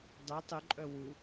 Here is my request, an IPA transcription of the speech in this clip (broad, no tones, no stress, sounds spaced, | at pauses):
dˤ y tˤ y ǃʼ œ w u